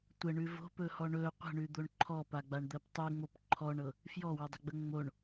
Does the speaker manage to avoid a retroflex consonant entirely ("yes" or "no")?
no